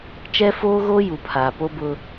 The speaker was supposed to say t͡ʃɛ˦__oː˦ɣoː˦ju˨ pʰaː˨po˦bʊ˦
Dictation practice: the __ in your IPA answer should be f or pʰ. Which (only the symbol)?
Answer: f